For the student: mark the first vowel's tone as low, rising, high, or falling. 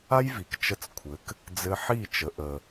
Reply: high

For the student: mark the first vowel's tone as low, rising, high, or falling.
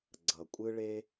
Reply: low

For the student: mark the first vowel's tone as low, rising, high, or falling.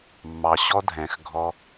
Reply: low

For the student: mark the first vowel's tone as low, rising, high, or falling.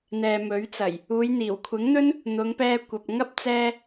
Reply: low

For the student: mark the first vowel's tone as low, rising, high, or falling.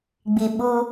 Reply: low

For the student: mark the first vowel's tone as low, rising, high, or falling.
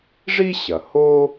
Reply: high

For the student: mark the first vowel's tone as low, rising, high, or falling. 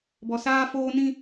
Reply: low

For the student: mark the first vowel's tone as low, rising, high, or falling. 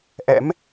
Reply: rising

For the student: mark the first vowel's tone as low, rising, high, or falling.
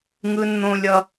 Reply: high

